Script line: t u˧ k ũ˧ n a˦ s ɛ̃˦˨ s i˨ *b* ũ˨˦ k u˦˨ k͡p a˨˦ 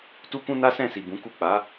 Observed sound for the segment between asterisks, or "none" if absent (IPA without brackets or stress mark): b